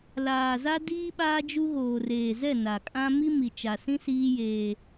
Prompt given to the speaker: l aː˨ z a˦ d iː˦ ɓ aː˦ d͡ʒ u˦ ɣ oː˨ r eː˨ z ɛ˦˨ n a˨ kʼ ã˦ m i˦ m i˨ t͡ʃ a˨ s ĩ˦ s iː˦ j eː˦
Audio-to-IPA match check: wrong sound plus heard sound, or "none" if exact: none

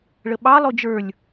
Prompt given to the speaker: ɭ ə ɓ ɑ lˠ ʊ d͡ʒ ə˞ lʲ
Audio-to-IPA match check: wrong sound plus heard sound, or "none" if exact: none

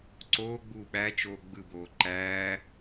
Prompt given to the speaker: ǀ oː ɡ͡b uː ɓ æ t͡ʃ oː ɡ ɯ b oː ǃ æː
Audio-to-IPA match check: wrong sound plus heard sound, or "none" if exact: ɡ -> ɡ͡b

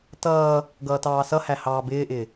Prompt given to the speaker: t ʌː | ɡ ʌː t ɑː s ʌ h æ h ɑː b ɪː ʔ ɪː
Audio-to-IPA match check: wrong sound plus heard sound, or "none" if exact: none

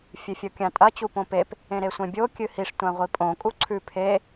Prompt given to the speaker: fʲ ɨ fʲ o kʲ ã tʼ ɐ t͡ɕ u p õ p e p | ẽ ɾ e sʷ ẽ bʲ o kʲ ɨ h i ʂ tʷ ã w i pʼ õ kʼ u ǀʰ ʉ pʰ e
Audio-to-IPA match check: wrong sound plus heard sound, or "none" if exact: w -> ʁʷ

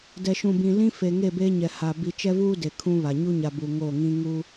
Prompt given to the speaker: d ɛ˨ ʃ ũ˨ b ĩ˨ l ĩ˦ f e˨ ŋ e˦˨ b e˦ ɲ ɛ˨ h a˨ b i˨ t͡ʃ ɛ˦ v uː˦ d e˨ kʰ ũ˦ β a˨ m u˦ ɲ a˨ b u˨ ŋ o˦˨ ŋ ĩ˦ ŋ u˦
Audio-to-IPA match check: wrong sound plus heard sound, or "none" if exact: m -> ɲ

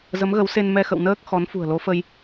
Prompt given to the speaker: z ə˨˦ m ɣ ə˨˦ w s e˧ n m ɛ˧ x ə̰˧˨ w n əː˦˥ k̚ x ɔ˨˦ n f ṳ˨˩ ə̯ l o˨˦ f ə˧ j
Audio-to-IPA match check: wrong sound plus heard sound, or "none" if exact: none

